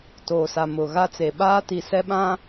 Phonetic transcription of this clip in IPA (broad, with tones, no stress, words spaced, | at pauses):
toː˨sa˨mʊ˨ ɣa˦t͡se˨ ɓaː˦ti˨ sɛ˦ɓã˦